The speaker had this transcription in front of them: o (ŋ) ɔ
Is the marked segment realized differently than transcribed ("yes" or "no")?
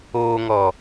no